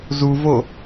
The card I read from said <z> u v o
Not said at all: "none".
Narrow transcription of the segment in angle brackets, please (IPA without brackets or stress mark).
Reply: z